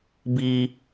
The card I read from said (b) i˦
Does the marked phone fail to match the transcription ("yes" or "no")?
no